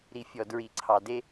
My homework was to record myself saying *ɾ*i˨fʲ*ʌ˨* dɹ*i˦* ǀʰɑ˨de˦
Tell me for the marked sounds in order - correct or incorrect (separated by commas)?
correct, incorrect, incorrect